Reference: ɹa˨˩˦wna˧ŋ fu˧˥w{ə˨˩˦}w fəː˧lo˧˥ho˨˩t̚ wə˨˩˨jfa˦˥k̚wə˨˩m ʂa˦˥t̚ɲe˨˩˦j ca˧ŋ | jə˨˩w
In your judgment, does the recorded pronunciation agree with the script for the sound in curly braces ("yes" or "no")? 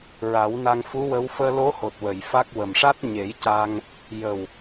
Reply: no